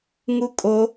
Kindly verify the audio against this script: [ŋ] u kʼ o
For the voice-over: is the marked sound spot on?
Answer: yes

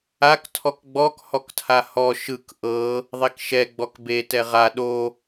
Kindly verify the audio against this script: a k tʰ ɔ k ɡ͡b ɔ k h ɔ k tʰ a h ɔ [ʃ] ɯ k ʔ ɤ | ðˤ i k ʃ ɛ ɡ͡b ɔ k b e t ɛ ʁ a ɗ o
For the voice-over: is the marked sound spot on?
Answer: yes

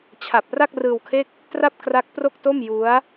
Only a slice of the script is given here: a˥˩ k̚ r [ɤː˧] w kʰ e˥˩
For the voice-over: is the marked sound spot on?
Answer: no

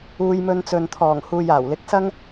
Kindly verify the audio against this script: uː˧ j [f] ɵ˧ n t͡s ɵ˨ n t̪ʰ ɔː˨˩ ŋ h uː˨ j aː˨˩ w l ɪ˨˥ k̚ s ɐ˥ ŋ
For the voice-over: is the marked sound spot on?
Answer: no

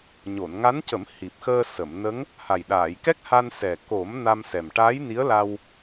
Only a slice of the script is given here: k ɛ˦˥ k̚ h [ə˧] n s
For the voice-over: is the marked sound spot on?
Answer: no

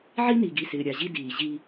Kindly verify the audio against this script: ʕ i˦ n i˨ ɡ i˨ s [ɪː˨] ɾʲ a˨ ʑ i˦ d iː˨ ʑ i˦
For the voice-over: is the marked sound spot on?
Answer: yes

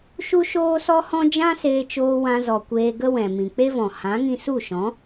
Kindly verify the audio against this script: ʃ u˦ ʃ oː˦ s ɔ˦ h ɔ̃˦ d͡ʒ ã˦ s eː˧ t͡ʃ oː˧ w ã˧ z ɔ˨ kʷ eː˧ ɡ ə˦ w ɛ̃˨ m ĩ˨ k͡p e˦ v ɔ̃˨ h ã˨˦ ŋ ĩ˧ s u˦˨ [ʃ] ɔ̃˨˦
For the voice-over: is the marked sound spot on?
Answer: yes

